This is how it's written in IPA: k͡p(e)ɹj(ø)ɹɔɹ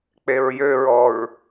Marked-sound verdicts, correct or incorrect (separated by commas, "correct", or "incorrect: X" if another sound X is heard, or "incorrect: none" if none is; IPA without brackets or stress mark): correct, correct